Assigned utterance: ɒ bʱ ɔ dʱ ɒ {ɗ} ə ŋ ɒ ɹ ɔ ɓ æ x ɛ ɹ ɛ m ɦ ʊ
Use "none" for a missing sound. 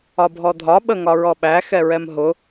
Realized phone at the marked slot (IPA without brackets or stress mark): ɓ